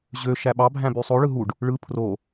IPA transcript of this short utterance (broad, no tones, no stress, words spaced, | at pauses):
ʑø ʃæɓɑ bʱæ̃bysˤo ɭɯɦuɖ | ɭɯ pʰro